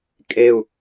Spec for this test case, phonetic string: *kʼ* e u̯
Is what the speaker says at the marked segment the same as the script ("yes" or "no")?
yes